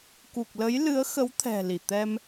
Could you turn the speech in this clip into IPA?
k u˨˩ k̚ l ə˨˦ j l ɨ˨˦ ə̯ x ə˨˦ w t̪ʰ ɛ̤˨˩ l i˧˩ t̪ ɛ˧ m

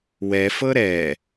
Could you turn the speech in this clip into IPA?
w ɛ f ɤ ɾ ɛ

